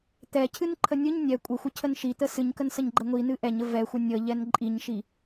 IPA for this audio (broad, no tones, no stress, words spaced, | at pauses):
t̪ɛcʰɨnǃʰə nʲɨɲ nʲɛ kʷʼəxʷəcʰən ʃit̪ə sɨɲkənsəɲɡ͡ǃɛ ŋʷinɨ ʔɛɲə vɛxʷə nʲəʎɛn ǃʼiɲʃi